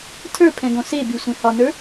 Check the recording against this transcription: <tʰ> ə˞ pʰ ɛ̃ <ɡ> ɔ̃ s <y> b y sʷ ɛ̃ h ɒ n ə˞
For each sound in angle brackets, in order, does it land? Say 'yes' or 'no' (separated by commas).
yes, yes, no